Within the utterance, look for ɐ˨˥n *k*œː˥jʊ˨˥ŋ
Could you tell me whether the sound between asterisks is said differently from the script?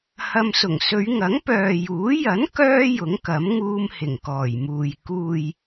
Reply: no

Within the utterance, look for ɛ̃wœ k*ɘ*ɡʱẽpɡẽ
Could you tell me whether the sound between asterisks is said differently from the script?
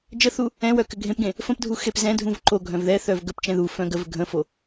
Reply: no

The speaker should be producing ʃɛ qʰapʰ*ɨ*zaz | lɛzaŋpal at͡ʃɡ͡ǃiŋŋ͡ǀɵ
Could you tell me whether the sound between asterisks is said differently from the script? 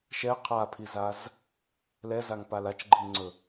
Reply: yes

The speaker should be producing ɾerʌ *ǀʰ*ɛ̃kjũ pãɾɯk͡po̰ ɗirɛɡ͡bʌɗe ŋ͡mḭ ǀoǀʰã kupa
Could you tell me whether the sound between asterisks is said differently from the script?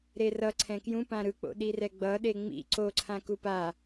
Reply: no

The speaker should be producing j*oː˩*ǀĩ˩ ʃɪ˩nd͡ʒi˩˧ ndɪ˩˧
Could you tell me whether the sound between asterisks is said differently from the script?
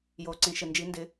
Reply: no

